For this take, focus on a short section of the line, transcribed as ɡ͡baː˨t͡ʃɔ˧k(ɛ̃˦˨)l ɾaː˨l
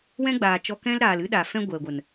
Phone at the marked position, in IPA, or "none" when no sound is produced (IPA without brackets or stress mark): ɛ̃˦